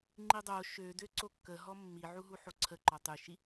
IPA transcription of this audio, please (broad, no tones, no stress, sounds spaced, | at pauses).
ŋ͡ǃ i dˤ o ʃ ø d ø ǀ o kː ə ɦ ɔ mː i ʕ u ɦ u ħ o ǀʰ ə ǃ ɔ tˤ y ʃ i